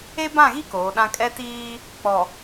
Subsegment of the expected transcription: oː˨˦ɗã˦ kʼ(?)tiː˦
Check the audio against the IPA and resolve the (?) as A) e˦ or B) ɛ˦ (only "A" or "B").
B